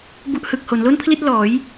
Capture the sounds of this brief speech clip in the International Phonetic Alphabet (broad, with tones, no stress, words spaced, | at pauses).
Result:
bu˥˩ʔ hɯ˨˩k̚ho˩˦n lo˥˩npʰli˥˩t̚lɔː˩˦j